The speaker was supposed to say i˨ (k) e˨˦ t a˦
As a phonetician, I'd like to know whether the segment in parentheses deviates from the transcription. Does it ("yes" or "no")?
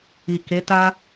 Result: no